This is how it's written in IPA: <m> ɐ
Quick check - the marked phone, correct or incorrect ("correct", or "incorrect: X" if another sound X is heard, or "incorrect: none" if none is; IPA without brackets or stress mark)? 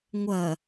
incorrect: ŋʷ